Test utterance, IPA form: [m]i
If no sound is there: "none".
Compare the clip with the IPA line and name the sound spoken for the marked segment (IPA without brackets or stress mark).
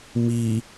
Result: m